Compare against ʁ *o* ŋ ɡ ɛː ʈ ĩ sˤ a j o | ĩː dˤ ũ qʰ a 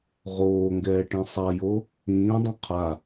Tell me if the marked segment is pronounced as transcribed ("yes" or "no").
no